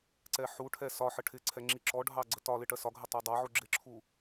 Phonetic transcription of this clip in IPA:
ǀɛħuʈʰɛ sɒħə ʈʰɪǀʰɛ ŋ͡ǁiǁɔɖʱɑ ɡ͡ǀətɒlɪ ʈɜsɒɡʱə tˤɑdˤɑʕu ɡ͡ǁɪǁʰu

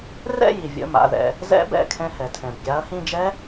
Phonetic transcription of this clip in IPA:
rɛ̰˦˨ji˩vʲə̰˩˧˩ ma̰˩˧˩ðɛ̰˨˦ | zɛ̰˦˥bɛ̰˩˧˩ kʰɛ̃˦˨ hɛ˩tʰɛ̃˩bɡʲa˨˦ɐ̯ hĩ˦˨d͡ʒɛ˦˥

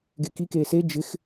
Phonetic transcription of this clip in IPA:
ɡeki keːse d͡ʒɪx

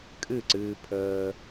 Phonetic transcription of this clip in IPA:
kʼɨ˦˨ǀɨː˧ pʰəː˧

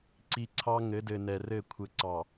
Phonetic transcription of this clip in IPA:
ǀi˨ǀʰɑ˦ ŋɘ˨˦dɘ˨nɛ˨ rɘ˦˨kʷʰɘ˨ǀɑ˨

